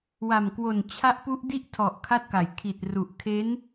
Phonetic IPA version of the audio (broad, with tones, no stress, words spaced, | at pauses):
wa˨˩mkwo˨˩n t͡ɕʰa˦˥ʔpu˦˥ʔ di˥˩ʔtʰɔ˨˩ʔ kʰa˥˩t̚ka˨˩j kʰi˨˩t̚ru˨˩ʔkʰe˦˥n